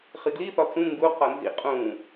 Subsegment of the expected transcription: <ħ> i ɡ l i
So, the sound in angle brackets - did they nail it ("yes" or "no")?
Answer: no